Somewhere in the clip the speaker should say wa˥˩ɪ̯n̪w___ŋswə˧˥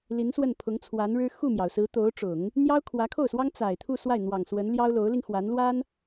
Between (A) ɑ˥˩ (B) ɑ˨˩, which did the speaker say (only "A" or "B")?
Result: B